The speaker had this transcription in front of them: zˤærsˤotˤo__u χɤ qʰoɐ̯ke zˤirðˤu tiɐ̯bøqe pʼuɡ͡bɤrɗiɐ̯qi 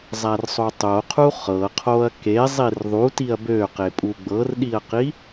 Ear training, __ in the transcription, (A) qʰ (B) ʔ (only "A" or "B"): A